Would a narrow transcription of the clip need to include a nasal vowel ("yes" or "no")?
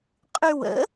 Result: no